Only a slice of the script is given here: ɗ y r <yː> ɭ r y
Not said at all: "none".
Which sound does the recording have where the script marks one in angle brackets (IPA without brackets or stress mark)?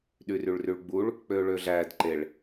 y